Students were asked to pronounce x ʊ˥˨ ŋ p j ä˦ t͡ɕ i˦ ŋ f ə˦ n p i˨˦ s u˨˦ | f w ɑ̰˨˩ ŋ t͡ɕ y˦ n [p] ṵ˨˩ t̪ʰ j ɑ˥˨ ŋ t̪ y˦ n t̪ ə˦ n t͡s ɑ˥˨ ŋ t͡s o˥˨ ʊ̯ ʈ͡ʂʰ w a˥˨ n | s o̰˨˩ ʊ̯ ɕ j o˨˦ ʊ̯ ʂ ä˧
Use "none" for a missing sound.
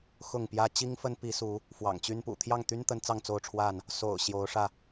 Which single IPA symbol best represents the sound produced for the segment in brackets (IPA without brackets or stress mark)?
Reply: p